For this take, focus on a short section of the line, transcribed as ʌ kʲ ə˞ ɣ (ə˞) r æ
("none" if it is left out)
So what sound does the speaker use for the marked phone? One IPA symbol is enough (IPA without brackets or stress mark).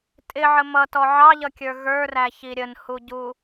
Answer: ə˞